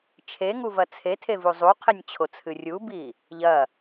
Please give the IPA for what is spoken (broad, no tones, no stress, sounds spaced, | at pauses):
t͡ʃʰ e ŋ u v ɐ t͡sʰ e tʰ e v u zˤ u qʰ e nʲ t͡ɕʰ o t͡sʰ ɨ rʲ u b i | ʎ ɐ